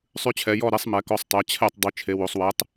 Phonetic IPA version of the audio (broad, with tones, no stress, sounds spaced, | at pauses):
sˤ ʉ˨˥ t͡ɕʰ ɛ˩˧ j ɔ˦˨ ɾ ɛ˨˥ sˤ m ɛ˩˧ k ɔ˨˥ sˤ tˤ ɛ˩˧ t͡ɕʰ ɛ˦˨ tˤ dˤ ʉ˩˧ t͡ʃʰ e˩˧ w o˩˧ sˤ w ɛ˨˥ tˤ